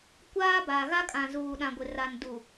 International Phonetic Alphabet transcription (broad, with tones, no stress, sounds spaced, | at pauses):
kʷ aː˦ b a˨ ɣ a˦ kʼ ã˨ z uː˨ ɗ ã˨ ɡʷ ɪ˨ r a˨ n d u˨